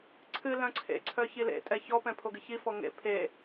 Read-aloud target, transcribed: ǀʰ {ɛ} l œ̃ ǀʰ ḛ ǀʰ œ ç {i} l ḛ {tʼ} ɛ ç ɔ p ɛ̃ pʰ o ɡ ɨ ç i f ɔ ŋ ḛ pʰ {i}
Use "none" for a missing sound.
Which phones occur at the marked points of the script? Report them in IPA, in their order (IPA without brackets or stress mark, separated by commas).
ɨ, i, tʼ, e